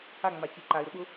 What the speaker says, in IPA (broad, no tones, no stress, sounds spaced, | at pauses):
h a ŋ͡m a t͡ɕ i ǃ a ɪ̯ ɾ ʊ ɓ ʊ